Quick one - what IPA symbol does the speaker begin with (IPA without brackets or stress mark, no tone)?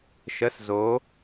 ʃ